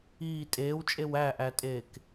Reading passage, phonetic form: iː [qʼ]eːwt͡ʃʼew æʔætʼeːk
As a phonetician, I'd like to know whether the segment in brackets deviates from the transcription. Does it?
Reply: yes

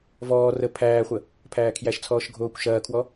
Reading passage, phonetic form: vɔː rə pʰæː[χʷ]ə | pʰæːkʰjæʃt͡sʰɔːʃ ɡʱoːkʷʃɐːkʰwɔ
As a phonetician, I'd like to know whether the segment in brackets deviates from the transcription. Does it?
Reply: no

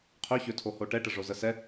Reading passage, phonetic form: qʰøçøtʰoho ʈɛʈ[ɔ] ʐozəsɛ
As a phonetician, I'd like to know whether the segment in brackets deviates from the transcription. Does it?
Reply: yes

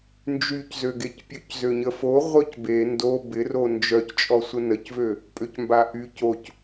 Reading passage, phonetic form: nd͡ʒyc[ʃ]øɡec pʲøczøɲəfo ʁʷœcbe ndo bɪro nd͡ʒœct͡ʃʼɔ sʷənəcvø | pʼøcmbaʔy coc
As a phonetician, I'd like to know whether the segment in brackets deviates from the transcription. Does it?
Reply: yes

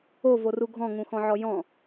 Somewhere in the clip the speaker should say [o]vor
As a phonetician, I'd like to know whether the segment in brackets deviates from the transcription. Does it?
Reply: no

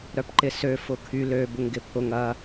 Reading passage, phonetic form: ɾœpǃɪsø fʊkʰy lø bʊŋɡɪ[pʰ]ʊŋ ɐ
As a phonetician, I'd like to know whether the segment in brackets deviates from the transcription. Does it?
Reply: no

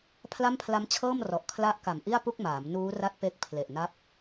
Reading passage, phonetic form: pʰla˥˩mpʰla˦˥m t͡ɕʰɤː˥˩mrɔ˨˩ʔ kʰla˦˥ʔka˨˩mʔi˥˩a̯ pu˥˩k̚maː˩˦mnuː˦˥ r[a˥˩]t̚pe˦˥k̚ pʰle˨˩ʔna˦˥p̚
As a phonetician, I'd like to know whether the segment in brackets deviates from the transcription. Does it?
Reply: no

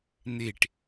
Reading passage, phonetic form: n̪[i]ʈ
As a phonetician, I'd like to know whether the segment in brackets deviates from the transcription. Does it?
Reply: yes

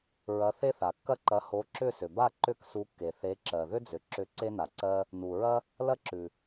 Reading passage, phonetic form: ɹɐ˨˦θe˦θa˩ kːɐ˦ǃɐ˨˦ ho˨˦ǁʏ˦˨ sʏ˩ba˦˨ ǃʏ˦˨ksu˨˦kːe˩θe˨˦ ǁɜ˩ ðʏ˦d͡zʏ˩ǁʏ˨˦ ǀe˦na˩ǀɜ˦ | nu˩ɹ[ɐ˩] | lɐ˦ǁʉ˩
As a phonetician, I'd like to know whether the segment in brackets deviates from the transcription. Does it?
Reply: yes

